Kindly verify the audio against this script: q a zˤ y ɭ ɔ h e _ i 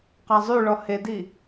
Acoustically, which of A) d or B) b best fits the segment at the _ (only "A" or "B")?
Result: A